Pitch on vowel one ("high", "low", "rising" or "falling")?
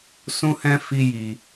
high